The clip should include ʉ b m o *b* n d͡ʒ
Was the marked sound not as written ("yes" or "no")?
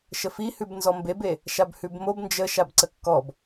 no